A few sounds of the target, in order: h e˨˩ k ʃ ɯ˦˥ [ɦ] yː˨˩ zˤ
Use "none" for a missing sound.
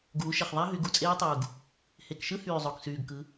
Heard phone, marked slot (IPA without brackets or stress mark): h